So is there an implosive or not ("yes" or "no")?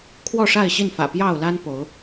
no